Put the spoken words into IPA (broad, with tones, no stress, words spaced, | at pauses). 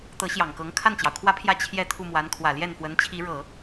t̪ɤ˧˥ɕjɑ˨˩ŋkɤ˧˥ŋ kʰa˥˩nt͡ɕjɑ˩ʊ̯kʰwä˥pʰjä˥˩ t͡ɕʰjɛ˥ t̪ʰu˥˩mwa˧˥nkʰwä˨˩ ljɛ˥˩nfwə˧˥nt͡ɕʰi˧˥ɻɤ˨˩˦